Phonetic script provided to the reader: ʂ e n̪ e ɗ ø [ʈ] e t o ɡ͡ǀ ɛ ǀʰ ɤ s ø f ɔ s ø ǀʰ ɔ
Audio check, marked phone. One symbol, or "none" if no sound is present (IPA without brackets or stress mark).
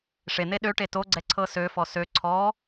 ʈ